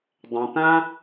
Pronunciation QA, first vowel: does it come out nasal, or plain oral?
nasal